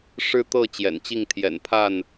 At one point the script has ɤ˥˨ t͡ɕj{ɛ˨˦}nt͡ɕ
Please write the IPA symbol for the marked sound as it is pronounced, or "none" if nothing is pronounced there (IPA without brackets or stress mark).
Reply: ɛ̰˨˩